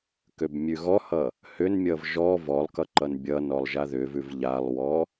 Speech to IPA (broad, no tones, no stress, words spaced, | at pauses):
købmʲʉɣɔhʌ | hʏnmʲʌv ʒɔ vɔlˠkʌ ǃʌnbʲʌnɔlˠ ʒaðʏvʉv ʎalˠwɔ